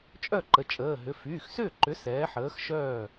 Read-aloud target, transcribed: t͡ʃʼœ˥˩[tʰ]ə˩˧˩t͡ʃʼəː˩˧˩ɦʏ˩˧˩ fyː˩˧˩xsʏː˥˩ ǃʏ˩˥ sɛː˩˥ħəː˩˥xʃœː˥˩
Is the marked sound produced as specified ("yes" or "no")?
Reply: no